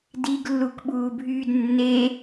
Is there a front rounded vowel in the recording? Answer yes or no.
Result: yes